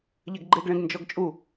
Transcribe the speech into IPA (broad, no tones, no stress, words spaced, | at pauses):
ʎɛɡɡ͡ǃeɡɭẽɡ nd͡ʒɔɡt͡ʃʼu